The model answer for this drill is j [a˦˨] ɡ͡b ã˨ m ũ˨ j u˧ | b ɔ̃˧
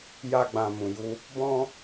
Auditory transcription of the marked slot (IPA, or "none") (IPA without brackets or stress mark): a˧